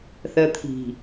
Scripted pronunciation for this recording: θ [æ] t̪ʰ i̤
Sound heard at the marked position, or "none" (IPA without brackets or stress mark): ɜ